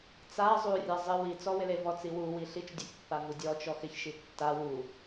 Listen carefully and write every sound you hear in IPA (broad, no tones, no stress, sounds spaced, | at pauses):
t͡s a zˤ u rʲ a zˤ ɪ w i t͡s ɔ w ɪ l e v ɔ t͡s i w u w i ɬ i t͡ʃ dʲ u ç pː a v u dʲ ɔ t͡ʃ ɔ x ɪ ç ʃ i tː a w u